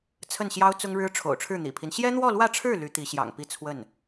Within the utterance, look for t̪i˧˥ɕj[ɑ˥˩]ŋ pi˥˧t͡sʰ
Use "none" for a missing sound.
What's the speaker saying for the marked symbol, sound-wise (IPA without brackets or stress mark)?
ɑ̰˨˩